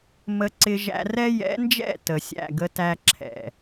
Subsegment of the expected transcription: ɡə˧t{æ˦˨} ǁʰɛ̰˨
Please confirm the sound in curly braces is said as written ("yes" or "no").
no